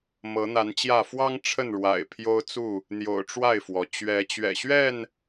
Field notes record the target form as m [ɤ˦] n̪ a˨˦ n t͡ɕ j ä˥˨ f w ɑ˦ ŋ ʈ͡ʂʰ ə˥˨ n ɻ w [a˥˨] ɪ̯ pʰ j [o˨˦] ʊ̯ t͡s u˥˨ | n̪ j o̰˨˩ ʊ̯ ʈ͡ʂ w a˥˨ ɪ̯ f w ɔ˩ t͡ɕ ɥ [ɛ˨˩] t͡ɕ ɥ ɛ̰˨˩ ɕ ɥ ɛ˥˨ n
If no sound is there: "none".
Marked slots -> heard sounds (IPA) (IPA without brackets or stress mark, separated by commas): ɤ˨˦, a̰˨˩, o˦, ɛ˨˦